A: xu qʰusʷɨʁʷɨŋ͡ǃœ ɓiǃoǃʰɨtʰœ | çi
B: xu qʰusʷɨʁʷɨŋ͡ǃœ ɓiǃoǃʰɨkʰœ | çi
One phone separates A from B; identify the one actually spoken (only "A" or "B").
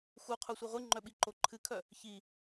B